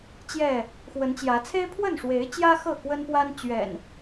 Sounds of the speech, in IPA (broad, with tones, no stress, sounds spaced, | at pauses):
t͡ɕ j ɛ˥˨ | x w ə˨˦ n t͡ɕ j ä˨˦ t͡sʰ e˦ ɪ̯ pʰ w ə˥˨ n ʂ w e˨˦ ɪ̯ t͡ɕ j ä˦ x ɤ˥˨ k w ə˦ n p w a˦ n t͡ɕ ɥ ɛ̰˨˩ n